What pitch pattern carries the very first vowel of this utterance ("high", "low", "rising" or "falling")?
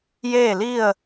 falling